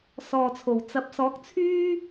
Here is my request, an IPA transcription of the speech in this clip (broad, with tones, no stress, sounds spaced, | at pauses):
s ɔː˨ t͡sʰ o˨˩ w t͡s ɐ˨ p̚ s ɔː˨˥ k̚ t͡sʰ yː˥